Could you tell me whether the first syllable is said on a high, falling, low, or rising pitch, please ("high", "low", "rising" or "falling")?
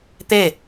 falling